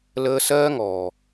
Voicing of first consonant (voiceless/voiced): voiced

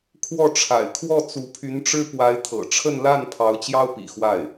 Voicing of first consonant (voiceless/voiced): voiceless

